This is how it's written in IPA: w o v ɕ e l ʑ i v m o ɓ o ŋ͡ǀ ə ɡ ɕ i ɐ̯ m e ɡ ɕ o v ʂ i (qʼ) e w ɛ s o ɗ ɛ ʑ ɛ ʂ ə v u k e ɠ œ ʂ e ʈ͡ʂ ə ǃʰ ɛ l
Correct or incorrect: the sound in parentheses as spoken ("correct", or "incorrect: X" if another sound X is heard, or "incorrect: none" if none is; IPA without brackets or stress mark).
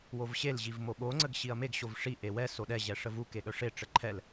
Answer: incorrect: ʔ